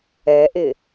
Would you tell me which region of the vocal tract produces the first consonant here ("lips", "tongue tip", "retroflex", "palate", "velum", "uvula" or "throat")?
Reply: throat